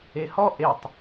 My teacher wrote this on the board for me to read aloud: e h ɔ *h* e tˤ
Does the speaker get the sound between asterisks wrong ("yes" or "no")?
yes